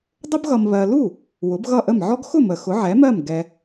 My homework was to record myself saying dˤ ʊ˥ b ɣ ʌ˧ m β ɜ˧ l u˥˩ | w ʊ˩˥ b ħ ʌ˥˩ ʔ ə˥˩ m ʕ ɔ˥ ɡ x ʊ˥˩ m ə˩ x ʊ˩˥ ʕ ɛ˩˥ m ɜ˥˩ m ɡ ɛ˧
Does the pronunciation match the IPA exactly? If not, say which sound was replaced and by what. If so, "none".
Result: ħ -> ɣ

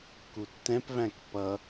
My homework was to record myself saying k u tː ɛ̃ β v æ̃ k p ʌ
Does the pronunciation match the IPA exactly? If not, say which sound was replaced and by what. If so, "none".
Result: β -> p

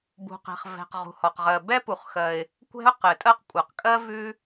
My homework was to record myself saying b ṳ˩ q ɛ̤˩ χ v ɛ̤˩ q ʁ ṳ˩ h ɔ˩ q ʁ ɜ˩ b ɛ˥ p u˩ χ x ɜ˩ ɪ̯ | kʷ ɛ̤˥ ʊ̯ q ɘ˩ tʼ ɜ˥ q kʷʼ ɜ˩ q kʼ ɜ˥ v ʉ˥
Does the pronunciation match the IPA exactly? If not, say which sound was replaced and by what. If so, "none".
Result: none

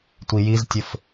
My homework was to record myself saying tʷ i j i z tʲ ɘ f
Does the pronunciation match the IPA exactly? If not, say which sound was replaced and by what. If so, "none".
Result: none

